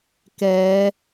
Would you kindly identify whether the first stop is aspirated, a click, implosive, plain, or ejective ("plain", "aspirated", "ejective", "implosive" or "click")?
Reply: plain